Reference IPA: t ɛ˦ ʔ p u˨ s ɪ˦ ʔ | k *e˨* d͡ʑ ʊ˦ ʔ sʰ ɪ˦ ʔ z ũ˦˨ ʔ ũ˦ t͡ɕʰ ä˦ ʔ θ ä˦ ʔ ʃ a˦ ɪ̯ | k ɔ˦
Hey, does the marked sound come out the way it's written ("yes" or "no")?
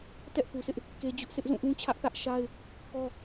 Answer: no